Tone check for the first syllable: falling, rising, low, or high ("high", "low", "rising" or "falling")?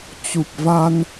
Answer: low